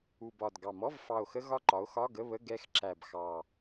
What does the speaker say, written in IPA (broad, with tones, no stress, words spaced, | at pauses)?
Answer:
u˨˩bɒ˨˩d ɡɑ˨˩mɔ˧˥˧v fɑ˨˩o̯xə˧ ɣɒ˧ǃɒ˩˧o̯ xɒ˧˥˧ɡə˧˥˧βə˧˥˧ ɡɛ˧x ǁæ˨˩b xɑ˨˩